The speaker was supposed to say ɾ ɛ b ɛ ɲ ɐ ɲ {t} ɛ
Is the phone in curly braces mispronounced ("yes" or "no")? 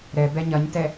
no